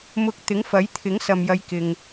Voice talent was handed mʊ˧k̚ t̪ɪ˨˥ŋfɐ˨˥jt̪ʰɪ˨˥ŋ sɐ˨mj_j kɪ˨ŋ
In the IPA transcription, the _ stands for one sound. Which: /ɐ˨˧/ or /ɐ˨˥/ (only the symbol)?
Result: ɐ˨˧